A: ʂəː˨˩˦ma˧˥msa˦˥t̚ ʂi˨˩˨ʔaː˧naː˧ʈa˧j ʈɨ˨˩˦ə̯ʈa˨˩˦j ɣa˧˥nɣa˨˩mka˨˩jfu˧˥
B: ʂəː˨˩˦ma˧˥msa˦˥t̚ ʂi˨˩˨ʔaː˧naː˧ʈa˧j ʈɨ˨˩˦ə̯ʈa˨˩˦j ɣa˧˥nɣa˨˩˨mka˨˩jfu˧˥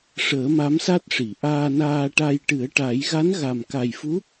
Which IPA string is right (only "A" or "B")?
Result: A